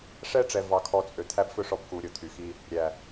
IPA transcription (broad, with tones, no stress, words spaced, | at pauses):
ʂɛ˦ʈ͡ʂɛ˨ vɑ˧kʰɔ˧ t͡sʼø˨t̪ʰæ˦bfɵ˦ʂɔ˧b ku˧ ɾʲo˧t̪ʰy˨xi˦ | ɾʲæ˨